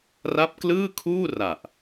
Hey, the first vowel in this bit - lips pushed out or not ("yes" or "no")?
no